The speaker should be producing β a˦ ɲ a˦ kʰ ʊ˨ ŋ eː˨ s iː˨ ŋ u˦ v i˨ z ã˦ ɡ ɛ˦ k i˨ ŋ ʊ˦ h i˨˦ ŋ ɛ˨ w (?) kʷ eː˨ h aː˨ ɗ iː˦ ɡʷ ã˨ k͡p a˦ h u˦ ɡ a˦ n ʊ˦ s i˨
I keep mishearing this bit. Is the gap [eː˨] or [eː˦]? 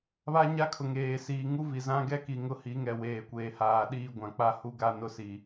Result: eː˨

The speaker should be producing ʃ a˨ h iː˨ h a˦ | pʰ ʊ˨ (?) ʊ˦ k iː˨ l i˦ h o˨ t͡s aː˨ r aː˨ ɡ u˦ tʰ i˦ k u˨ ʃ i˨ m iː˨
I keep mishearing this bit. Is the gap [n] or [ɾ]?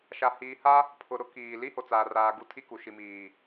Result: ɾ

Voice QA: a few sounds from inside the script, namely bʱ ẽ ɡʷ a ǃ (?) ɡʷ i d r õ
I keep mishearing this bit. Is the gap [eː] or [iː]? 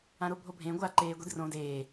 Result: eː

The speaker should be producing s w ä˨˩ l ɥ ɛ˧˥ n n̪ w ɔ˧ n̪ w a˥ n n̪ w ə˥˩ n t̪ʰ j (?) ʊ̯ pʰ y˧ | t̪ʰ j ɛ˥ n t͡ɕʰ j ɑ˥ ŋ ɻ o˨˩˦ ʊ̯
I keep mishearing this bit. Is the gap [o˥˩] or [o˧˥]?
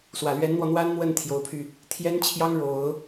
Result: o˧˥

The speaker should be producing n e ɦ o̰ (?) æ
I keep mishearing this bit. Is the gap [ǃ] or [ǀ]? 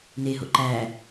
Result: ǃ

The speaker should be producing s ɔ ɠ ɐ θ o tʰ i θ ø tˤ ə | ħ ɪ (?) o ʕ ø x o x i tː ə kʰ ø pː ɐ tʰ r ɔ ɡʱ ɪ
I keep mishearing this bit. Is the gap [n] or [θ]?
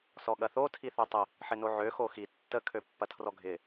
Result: n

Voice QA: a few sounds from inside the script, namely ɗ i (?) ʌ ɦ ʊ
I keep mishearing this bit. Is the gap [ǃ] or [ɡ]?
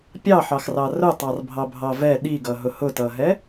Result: ɡ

